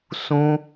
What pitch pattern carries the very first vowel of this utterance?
high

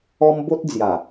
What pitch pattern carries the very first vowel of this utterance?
high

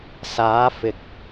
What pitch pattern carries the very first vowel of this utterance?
rising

